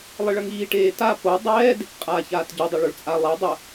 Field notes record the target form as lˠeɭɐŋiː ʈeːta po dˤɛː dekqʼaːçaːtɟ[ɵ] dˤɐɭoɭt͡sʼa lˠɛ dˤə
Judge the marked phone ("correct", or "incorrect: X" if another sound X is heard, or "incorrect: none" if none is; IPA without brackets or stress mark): correct